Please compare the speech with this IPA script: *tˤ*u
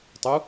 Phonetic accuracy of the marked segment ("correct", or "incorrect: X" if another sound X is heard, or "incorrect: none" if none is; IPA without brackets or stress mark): correct